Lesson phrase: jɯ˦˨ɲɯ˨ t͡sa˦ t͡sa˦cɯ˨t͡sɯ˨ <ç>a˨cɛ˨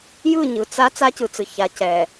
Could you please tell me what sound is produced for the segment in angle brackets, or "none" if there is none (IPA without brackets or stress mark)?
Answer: ç